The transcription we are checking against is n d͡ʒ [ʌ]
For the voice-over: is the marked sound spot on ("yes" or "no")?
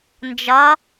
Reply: yes